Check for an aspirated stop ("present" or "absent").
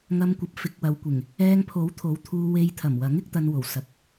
present